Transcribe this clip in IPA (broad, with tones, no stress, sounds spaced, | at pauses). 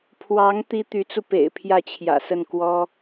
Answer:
pʰ w ɑ˧˥ ŋ t̪ i˥ t̪ y˧˥ t͡s u˧ p ḛ˨˩ ɪ̯ pʰ j ä˥˩ t͡ɕʰ j ä̰˨˩ s ə˥˩ n k w ɔ˥